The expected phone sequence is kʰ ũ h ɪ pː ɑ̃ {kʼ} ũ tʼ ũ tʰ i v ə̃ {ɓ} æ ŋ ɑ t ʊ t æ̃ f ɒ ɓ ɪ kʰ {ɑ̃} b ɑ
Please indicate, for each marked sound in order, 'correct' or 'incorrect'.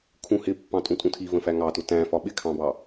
incorrect, incorrect, correct

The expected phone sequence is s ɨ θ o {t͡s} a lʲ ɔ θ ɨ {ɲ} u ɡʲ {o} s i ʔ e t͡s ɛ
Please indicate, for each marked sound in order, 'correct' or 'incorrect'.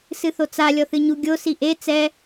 correct, correct, correct

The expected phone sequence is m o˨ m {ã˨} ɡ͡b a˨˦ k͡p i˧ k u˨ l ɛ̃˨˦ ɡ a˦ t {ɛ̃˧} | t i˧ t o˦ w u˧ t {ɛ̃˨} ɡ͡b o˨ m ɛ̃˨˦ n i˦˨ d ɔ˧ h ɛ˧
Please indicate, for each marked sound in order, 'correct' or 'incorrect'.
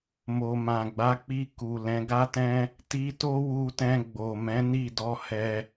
correct, incorrect, incorrect

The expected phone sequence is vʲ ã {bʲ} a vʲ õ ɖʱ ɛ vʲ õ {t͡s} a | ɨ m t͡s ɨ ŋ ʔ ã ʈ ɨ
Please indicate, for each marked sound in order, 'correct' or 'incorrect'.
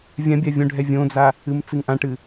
correct, incorrect

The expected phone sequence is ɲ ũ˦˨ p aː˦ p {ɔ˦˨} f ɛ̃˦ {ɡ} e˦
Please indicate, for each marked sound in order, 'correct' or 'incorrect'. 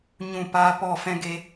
correct, correct

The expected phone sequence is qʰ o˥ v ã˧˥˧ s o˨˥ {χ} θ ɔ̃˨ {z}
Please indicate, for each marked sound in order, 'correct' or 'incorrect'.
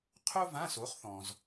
correct, correct

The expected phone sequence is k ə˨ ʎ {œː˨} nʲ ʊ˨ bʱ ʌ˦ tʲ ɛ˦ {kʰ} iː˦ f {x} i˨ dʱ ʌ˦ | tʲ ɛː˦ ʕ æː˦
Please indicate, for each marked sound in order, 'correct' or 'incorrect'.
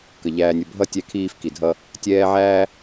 incorrect, correct, incorrect

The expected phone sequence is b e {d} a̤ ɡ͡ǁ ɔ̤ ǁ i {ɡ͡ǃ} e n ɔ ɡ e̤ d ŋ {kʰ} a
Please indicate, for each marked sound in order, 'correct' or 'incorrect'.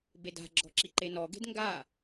correct, incorrect, incorrect

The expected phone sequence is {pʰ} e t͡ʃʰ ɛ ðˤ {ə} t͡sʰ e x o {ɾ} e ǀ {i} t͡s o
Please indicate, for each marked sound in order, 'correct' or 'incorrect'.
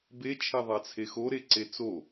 incorrect, incorrect, correct, incorrect

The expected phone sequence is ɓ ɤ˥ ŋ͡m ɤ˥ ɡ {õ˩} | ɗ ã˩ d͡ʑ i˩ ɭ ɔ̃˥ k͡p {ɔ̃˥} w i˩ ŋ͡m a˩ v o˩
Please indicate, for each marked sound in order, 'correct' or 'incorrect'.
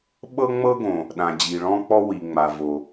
correct, incorrect

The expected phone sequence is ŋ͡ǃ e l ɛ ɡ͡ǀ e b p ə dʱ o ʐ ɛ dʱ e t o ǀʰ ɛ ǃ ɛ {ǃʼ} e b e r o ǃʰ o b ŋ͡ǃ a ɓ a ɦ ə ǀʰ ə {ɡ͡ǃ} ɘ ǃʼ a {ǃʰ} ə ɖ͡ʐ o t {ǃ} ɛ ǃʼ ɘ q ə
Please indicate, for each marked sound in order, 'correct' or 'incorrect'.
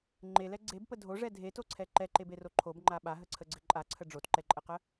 incorrect, incorrect, incorrect, correct

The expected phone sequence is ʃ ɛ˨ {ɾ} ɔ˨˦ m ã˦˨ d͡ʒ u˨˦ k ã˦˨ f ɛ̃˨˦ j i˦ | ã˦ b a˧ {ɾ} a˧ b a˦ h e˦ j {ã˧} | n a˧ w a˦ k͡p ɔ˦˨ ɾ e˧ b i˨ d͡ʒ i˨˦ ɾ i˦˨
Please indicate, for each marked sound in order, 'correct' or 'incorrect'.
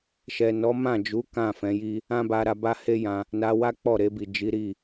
incorrect, correct, correct

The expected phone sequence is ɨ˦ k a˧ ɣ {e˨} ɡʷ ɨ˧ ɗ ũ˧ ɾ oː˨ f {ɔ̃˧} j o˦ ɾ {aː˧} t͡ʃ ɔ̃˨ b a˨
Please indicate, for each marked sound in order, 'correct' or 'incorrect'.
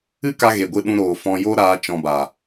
correct, correct, correct

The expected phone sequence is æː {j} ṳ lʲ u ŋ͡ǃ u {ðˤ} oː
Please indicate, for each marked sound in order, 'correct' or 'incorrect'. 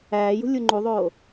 correct, correct

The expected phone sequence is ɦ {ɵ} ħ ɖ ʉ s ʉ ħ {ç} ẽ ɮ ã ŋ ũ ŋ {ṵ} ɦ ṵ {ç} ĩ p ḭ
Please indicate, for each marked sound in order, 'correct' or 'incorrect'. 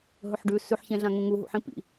correct, correct, incorrect, incorrect

